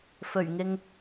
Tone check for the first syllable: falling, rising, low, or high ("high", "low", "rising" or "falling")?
low